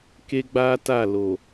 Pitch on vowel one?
high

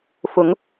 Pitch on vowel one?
rising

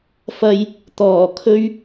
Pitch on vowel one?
low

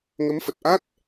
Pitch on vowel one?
rising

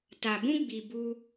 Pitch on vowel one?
low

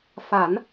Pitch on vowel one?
low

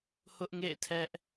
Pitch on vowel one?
high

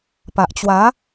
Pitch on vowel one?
low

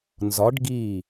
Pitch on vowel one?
rising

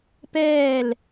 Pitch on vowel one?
falling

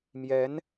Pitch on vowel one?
rising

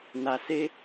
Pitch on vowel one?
low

